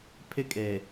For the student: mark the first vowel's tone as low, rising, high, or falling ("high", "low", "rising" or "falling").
high